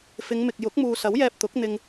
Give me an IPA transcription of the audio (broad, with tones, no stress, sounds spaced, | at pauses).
f ɪ˨˧ ŋ m ɪ˨ k̚ j ʊ˨˥ k̚ m uː˨ s ɐ˨˥ w j ɛː˧ p̚ t̪ ʊ˨˥ k̚ n̪ ɪ˧ ŋ